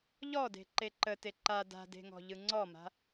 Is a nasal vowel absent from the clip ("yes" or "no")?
yes